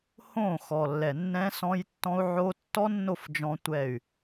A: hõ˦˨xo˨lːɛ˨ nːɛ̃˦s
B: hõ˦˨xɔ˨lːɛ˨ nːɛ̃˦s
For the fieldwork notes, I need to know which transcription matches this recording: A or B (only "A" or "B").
B